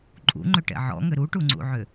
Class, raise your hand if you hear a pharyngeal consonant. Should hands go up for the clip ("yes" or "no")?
yes